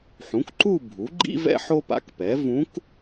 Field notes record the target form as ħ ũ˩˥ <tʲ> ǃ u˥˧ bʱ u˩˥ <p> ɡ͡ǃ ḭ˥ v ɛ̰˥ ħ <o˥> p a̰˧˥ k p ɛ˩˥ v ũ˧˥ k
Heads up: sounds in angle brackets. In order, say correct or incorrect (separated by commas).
incorrect, incorrect, correct